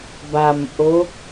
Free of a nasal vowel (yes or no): yes